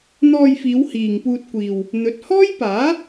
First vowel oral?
yes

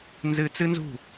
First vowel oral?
yes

